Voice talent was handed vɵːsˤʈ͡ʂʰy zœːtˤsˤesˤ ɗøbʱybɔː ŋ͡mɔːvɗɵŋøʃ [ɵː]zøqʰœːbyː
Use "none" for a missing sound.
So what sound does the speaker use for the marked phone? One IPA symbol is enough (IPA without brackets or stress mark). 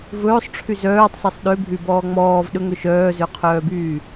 œː